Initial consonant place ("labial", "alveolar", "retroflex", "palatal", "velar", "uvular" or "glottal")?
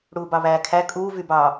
retroflex